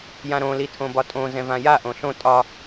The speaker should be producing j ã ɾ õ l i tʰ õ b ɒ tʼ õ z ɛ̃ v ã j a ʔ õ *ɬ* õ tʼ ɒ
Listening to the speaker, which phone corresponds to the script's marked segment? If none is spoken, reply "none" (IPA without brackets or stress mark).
ɬ